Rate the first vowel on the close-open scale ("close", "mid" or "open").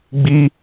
close